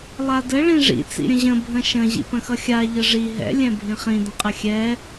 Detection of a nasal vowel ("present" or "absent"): present